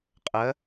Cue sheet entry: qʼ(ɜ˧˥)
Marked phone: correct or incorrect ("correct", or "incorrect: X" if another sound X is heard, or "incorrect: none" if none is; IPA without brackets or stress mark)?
correct